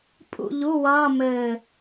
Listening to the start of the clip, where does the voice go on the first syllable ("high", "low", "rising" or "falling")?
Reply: falling